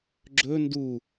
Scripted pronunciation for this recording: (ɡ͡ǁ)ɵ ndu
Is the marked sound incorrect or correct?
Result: correct